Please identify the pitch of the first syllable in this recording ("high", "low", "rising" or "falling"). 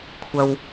low